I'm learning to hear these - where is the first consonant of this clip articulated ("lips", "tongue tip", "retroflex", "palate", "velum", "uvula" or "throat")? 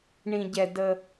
retroflex